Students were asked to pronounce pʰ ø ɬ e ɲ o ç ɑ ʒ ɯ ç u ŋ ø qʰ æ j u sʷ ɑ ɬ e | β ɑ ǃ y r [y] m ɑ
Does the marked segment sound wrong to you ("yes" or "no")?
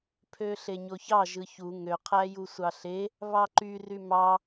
no